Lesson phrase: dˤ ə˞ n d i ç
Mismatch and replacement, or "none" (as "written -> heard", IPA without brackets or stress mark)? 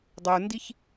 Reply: none